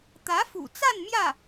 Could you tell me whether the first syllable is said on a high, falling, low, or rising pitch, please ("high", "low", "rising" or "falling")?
rising